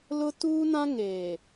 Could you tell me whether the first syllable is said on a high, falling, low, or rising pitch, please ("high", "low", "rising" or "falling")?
high